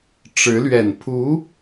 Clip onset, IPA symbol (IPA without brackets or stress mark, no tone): ʈ͡ʂ